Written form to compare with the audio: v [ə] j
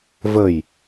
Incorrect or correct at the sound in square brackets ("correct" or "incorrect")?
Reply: correct